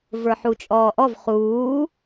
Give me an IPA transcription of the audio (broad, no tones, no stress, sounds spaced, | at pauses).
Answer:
v ə˞ ħ u t͡ʃʼ ɔː ʔ ɔ v χ uː